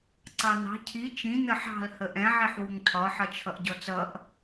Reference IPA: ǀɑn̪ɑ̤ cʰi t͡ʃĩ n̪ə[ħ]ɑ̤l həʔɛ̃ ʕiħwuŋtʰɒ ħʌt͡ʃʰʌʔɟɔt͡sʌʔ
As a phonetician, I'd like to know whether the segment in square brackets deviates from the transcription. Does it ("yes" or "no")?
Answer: no